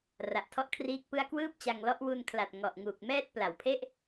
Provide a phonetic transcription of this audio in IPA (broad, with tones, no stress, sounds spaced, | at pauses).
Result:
r a˨˩ ʔ tʰ ɔ˥˩ ʔ kʰ r iː˦˥ k̚ p ɯ˥˩ a̯ k w ɯː˥˩ p̚ t͡ɕ a˧ ŋ l ɔ˦˥ ʔ w u˧ n kʰ l a˨˩ t̚ ŋ ɔ˨˩ ʔ ŋ uː˨˩ k̚ m ɛː˥˩ t̚ p l a˨˩ w pʰ e˥˩ ʔ